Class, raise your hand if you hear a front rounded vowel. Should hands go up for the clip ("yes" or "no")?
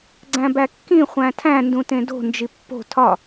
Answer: no